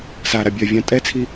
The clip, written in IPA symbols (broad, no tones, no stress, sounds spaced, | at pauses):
s a ɾ a bʲ ɜ vʲ ã tʼ ɛ t͡sʰ i